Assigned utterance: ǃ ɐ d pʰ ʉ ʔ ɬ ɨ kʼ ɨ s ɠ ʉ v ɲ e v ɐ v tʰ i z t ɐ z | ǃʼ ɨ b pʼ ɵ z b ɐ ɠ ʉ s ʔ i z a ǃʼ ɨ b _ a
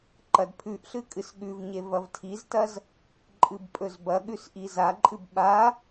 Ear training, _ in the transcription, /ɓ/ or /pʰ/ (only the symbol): ɓ